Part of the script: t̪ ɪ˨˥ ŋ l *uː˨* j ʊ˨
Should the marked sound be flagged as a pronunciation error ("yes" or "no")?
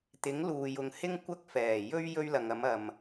no